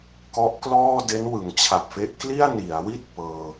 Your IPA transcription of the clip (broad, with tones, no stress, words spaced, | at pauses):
kɔ˦˥ʔklɔː˥˩ de˦˥nwɯ˩˦ŋt͡ɕʰa˨˩p̚fe˦˥ʔ kli˥˩a̯ni˩˦a̯wi˥˩t̚ pɤː˧